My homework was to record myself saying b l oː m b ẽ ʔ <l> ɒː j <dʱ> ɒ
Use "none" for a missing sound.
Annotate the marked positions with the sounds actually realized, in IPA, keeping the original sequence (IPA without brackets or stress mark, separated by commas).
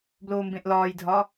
l, dʱ